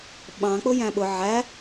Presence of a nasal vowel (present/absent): present